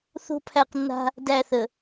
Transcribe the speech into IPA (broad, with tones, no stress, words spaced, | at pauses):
θo̤˦pʰæ˦˨qnːa̤˦ | dæ˦˨θə˨